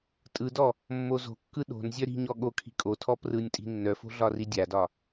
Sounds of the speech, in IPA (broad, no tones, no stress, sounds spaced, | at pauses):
tʼ ɯ d ɔ | mː o z o̤ kː ɯ ɗ o̤ n zʲ œ ɾ i̤ ɲ ɔ ɠ o kʰ i̤ kʼ o tʰ ɔ p r ɯ nʲ tʼ i̤ nː œ f o̤ ɮ ɒ r i dʲ a d ɒ